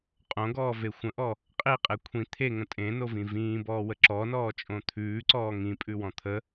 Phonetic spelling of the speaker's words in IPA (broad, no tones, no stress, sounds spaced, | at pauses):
qʼ õ ɡ ɔː v e xʷ ə̃ ʔ ɔ | qʼ i qʼ e kʷʰ ĩ t̪ʰ e ŋ ə̃ tʼ ẽ n o v ĩ v ĩː b ɔː w ə ǁ ɔ n ɔː t͡ʃʼ õ t̪ʰ ʉː ǀ ɔː ŋ ĩ pʼ ʉ w ɔ̃ t̪ʰ ə